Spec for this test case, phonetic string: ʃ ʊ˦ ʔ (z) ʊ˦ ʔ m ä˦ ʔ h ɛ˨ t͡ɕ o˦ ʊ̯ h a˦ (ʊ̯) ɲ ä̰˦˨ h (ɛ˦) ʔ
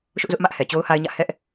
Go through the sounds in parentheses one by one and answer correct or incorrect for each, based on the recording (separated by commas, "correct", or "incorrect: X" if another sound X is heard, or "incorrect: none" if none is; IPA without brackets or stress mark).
correct, incorrect: ɪ̯, correct